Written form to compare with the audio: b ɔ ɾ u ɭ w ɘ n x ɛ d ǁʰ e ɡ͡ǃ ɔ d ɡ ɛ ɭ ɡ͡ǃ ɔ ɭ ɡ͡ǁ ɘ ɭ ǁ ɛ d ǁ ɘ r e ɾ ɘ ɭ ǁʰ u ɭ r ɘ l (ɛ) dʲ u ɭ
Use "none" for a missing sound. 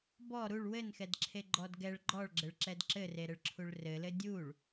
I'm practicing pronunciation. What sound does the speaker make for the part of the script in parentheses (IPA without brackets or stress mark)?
ɘ